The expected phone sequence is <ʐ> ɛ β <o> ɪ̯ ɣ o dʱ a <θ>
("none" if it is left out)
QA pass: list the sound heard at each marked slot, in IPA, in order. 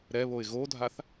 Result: ɾ, o, θ

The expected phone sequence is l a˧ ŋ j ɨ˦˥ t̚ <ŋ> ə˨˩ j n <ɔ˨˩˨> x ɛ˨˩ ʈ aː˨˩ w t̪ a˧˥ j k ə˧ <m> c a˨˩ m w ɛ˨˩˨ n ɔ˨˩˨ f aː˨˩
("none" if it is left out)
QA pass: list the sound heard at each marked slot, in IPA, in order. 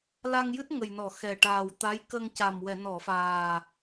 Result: ŋ, ɔ˨˩˨, ŋ

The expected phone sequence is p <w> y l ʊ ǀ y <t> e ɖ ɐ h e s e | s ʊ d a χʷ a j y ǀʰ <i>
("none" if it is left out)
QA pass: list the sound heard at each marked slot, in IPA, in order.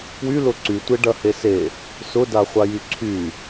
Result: w, tʷ, y

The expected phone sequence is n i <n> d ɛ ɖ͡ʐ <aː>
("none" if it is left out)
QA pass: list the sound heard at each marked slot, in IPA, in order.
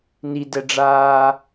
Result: none, aː

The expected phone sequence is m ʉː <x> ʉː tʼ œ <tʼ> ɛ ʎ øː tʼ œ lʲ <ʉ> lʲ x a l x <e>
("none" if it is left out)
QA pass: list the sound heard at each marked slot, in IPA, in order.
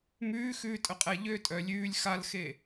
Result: x, qʼ, ʉː, e

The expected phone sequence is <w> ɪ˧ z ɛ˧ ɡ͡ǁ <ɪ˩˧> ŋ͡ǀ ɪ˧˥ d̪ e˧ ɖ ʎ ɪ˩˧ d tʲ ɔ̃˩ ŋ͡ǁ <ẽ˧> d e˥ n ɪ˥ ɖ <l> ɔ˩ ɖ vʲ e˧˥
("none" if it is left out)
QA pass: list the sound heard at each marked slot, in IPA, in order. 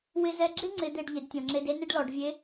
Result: w, ɪ˥, e˧, l

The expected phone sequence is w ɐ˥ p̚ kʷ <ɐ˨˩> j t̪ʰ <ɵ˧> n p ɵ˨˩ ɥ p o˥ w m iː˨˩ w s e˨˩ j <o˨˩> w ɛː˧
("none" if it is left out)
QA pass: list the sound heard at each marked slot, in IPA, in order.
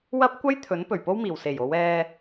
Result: ɐ˥, ɵ˨˥, o˨˧

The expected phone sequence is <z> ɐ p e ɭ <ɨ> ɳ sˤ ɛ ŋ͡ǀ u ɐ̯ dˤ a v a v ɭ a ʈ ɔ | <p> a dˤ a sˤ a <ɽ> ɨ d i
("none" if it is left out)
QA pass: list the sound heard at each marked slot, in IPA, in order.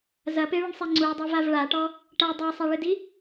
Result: z, ɨ, ʈ, ɭ

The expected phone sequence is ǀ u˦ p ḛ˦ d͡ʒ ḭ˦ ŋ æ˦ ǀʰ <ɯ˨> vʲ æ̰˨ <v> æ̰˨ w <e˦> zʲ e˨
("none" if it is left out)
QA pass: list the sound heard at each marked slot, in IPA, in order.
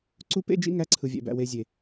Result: ɯ˨, b, e˨

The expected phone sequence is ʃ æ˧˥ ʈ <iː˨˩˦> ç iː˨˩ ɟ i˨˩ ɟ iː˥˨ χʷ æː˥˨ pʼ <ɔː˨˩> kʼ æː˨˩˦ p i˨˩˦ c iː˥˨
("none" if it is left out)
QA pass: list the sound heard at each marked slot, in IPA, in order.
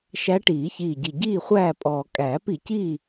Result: iː˨˩˦, ɔː˨˩

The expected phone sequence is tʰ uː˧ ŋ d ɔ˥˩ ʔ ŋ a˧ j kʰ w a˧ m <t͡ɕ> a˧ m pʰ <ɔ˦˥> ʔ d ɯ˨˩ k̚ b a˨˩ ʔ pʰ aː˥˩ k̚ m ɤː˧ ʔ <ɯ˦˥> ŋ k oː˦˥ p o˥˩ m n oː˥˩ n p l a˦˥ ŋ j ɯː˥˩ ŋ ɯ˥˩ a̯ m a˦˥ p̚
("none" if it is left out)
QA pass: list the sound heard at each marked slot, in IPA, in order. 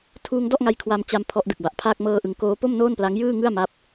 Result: t͡ɕ, ɔ˦˥, ɯ˩˦

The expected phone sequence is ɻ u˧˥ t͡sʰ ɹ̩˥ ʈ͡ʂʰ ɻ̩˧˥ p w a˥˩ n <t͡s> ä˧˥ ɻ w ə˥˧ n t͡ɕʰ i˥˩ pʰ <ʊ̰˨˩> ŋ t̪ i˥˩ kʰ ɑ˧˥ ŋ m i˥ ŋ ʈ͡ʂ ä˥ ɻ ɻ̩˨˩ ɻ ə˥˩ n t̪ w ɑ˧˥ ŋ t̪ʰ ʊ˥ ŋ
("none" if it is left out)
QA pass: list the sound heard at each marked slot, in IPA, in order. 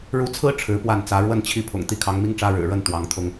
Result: t͡s, ʊ̰˨˩

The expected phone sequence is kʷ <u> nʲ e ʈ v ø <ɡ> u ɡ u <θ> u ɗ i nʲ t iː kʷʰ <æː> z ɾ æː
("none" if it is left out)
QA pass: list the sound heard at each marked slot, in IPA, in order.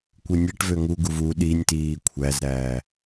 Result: ɯ, ŋ, v, æ

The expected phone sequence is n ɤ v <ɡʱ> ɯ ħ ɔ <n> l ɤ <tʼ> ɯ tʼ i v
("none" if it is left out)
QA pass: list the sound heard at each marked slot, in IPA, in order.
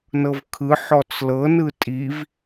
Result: kʰ, t͡s, n

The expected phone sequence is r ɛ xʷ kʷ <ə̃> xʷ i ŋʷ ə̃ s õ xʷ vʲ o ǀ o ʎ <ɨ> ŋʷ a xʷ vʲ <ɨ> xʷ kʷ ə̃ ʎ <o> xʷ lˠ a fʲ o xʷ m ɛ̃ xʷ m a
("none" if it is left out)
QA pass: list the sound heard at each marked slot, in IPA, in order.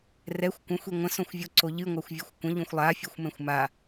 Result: ə̃, ɨ, ɨ, õ

